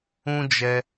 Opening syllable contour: high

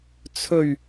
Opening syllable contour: low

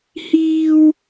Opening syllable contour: high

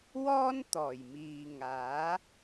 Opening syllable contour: high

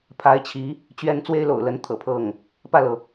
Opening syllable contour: rising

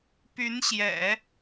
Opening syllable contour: rising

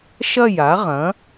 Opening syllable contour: falling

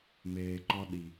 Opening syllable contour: low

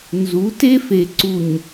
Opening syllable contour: rising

